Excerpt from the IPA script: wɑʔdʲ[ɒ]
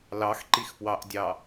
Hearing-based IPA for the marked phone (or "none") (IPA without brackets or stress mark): ɑ